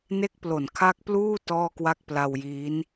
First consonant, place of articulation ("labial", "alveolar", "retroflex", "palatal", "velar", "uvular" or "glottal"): alveolar